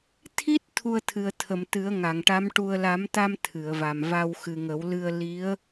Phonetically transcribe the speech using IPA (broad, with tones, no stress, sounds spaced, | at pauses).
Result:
t̪ʰ i˦˥ t̚ t̪ʰ u˧ ə̯ t̪ʰ ɨ˨˩ ə̯ t̪ʰ ə˨˩˨ m t̪ ɨ˨˩˦ ə̯ ŋ a˨˩˨ ŋ ʈ a˧˥ m ʈ u˧ ə̯ l a˨˩˦ m t̪ a˧ m t̪ʰ ɨ˨˩˨ ə̯ v a˨˩ m v a˧ w x ɨ˨˩ ŋ ə˨˩˦ w l ɨ˧ ə̯ l i˧˥ ə̯